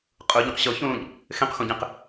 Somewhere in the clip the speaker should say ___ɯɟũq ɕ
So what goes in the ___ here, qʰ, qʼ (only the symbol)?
qʼ